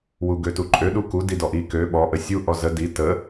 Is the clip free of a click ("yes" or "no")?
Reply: no